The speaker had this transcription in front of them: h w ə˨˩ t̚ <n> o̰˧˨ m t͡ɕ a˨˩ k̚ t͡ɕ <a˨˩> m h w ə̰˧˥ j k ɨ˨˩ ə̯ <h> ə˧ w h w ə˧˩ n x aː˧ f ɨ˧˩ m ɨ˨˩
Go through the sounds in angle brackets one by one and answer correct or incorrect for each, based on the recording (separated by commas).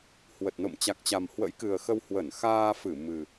correct, correct, incorrect